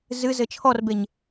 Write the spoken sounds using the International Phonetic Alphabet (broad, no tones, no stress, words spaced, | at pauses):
zɨzɘ t͡ʃʰɔrbeɲ